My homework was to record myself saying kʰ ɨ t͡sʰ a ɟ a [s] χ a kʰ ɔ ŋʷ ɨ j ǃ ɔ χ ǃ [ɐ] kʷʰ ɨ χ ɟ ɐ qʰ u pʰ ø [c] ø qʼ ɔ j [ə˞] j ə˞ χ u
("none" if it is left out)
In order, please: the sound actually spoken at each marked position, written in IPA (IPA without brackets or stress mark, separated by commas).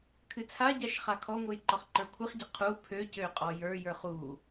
ʃ, ə˞, c, ə˞